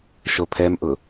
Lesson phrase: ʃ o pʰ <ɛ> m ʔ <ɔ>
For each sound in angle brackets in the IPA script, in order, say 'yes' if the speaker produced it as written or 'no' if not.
yes, no

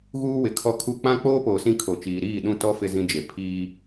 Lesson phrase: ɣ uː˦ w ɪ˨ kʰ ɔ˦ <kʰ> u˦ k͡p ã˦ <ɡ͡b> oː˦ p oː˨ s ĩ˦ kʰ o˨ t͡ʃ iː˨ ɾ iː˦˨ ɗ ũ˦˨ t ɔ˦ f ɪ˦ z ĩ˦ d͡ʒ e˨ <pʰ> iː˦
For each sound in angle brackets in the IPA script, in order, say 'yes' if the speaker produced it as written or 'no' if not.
yes, no, yes

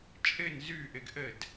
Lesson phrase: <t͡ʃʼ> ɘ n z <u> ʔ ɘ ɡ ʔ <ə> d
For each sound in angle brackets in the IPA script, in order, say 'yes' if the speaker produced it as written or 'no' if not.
yes, no, yes

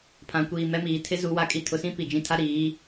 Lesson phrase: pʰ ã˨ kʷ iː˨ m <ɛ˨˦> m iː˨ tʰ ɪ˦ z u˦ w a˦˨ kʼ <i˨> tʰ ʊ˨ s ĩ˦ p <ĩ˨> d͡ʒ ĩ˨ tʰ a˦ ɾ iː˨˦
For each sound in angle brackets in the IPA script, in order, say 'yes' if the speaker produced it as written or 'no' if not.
no, no, no

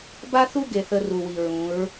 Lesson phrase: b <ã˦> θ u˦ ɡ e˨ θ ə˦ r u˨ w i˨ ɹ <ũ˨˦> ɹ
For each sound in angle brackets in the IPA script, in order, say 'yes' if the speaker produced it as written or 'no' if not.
no, yes

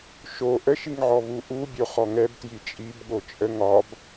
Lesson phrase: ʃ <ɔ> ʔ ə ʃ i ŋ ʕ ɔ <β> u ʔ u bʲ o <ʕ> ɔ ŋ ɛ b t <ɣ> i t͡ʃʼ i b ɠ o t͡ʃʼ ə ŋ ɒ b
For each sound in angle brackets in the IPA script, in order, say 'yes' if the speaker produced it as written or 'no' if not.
no, yes, no, no

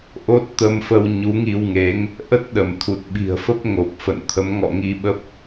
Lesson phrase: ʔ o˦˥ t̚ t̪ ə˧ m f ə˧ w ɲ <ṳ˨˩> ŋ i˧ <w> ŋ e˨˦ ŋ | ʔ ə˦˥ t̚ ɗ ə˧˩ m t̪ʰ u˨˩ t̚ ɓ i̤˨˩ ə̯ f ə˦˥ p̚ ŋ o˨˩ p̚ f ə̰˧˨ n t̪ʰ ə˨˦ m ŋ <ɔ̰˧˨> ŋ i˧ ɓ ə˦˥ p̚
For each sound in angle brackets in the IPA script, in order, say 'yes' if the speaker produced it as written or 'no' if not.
no, yes, yes

